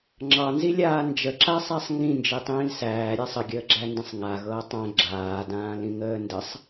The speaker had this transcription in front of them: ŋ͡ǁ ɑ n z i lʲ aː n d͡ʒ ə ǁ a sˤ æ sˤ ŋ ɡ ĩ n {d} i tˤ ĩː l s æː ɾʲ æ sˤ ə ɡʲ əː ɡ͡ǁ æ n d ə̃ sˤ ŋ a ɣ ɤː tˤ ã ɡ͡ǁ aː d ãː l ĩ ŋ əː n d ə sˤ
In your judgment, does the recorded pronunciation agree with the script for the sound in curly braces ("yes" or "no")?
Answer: no